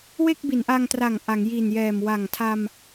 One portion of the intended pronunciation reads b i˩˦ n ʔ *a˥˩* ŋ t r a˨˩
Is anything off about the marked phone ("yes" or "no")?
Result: yes